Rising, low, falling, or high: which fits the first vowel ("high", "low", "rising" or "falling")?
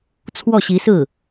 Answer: falling